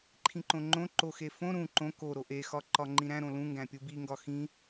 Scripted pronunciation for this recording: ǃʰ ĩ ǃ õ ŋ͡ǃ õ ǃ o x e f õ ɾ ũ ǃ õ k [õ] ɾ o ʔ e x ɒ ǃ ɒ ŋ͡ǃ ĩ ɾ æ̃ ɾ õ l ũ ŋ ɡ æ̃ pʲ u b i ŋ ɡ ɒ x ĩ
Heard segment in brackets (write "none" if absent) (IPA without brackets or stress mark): o